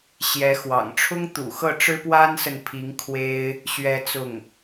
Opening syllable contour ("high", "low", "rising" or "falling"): rising